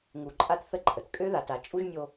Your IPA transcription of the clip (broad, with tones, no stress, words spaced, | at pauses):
ŋu˨ǃʼa˦tθə˦ ǃʼə˩tkʼø˥ða˨ ta˨t͡ʃʼu˥ʒnʲo˦